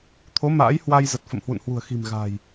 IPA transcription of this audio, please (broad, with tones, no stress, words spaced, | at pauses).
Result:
t̪ʰo˨˦ ma̰ː˧˥jhwa˧j zə˨˩t̚fə̰˧˨mhwṵ˧˨nhwṳ˨˩ə̯ xi̤˨˩mɣa̤˨˩j